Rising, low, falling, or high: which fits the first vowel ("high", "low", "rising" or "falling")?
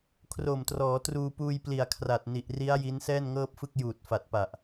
low